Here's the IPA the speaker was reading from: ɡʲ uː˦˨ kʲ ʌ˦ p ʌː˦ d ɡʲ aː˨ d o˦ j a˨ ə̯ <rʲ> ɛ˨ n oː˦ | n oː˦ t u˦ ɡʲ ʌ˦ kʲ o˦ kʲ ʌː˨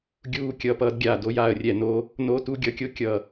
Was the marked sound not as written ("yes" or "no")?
no